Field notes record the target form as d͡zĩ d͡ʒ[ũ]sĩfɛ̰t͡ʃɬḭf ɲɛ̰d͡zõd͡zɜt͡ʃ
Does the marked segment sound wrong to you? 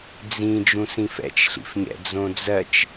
no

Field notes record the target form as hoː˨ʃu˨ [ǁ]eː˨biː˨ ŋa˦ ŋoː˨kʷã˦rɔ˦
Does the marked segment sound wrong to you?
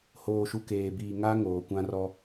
yes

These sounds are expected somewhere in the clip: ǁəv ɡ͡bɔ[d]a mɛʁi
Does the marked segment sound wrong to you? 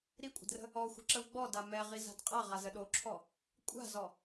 no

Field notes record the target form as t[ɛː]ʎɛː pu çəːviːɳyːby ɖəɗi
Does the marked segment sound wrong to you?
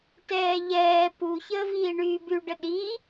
no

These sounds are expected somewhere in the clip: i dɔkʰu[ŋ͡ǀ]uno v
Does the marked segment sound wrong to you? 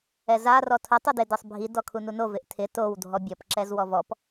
yes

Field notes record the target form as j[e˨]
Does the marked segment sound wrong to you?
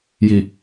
yes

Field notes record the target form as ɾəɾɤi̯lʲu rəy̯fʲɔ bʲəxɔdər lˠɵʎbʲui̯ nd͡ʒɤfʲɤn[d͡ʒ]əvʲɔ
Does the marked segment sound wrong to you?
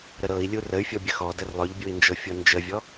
no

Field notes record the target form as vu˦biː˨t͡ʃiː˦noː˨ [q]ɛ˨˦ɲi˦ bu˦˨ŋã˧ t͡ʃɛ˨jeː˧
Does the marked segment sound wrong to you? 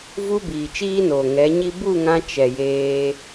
yes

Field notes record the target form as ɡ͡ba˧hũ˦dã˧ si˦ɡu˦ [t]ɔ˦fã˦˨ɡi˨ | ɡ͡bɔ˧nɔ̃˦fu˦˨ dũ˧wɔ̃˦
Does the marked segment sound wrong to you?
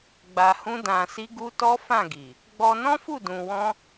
no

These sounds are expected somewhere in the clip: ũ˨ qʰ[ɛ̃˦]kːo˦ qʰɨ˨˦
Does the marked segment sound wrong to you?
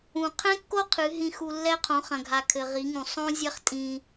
no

